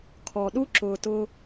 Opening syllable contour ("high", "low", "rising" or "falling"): low